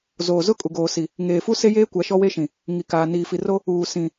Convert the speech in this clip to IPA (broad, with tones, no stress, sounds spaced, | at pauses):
z oː˨ z ʊ˦ kʼ u˨ ɡ oː˨ s i˨ | ŋ eː˨ f u˦ s e˦ j eː˦ kʷ a˨˦ ʃ ɔ˦ w e˦ ʃ ĩ˨ | ŋ i˨ k aː˨ n iː˨ f i˨ r o˦ | uː˨ s ĩ˨